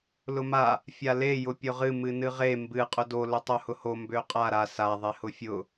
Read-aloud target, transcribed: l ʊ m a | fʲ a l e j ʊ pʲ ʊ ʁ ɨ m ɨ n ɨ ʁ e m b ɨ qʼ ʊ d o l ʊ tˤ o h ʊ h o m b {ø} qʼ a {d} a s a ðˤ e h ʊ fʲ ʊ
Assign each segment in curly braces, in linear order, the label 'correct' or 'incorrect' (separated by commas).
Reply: correct, incorrect